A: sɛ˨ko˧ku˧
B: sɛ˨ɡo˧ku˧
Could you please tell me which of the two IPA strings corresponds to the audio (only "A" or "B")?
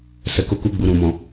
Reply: A